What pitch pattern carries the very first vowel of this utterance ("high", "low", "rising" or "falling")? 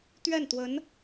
falling